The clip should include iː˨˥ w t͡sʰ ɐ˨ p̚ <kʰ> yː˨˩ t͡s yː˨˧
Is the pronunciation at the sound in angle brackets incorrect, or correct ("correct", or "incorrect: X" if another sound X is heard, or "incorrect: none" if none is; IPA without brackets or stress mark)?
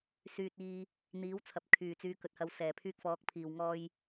correct